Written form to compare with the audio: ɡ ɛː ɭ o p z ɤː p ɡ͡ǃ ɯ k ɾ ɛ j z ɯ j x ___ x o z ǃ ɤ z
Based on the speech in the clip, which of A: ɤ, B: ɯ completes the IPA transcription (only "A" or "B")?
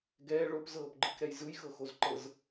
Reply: A